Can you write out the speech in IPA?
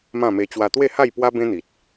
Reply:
mã˥˧me˧ t͡ɕwa˧t̪we˥˧ha˥˧j pwa˦ bẽ˦n̪i˨t̚

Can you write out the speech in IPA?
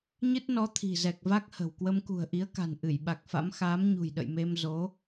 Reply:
ɲɨ˦˥t̚nɔ˨˦ t̪ʰi̤˨˩zɛ˨˩k̚ va˦˥k̚hə̤˨˩w kwə˧mkṳ˨˩ə̯ʔi˨˦ə̯ka̤˨˩n ʔɨ˧˩jɓa˨˩k̚fa̰˧˥m xaː˨˦mɲṳ˨˩jɗə̰˧˨j me˧m zo˨˦

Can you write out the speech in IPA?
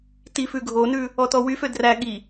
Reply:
tifʉ ɡʱonʉ | ɔtɔwyfø dræ ɠi

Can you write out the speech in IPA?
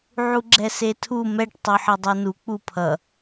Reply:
ʕuɡ͡ǁɛsetʰu mɛʈ tˤuħʌdˤunu k͡pupʰʌ

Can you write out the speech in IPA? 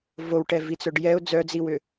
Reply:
vowʈɛ vit͡sœɖjɛʊ̯ d͡zœd͡ziwʏ

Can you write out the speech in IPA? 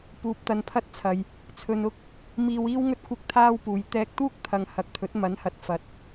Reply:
puː˨p̚t̪ɐ˧npʰɐ˥t̚t͡sʰɐ˨j | t͡sʰɵ˨nʊ˥k̚ | miː˧wiː˥wŋɵ˥t̚ kʷɪ˥k̚t̪ʰaː˥wpuː˨j t̪ɛː˧k̚t̪uː˥k̚t̪ʰɐ˨ŋ hɐ˨˥k̚t̪ʰɵ˨˥t̚ mɐ˨˥nhɐ˨t̚ fɐ˨t̚

